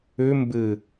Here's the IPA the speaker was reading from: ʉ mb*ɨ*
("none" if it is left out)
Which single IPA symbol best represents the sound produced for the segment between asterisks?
ɨ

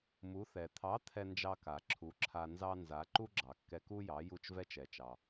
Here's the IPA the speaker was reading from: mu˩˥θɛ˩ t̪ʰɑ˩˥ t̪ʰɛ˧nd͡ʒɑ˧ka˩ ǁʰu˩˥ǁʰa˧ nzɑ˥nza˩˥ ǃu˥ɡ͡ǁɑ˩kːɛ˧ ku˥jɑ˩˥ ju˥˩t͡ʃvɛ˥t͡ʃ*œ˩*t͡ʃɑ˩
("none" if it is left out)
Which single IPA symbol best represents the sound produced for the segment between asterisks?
ɛ˩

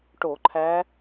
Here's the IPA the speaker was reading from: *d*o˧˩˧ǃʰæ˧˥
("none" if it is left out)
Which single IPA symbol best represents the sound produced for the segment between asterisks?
ʈ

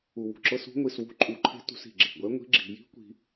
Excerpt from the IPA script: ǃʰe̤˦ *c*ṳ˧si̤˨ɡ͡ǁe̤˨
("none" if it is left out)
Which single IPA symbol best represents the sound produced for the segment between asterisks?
t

